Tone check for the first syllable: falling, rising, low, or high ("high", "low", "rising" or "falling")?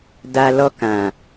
low